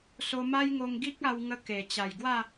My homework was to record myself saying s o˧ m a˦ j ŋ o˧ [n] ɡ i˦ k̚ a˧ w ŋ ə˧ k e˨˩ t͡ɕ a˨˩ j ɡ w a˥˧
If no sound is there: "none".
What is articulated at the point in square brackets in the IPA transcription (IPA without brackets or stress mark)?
ŋ